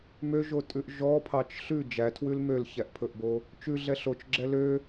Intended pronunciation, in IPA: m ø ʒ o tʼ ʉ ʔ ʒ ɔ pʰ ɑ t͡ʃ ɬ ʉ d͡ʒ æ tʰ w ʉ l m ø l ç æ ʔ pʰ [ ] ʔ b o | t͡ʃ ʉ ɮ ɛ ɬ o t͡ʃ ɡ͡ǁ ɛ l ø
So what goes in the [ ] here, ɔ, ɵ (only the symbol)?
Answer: ɵ